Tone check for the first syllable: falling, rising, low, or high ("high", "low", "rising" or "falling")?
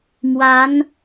rising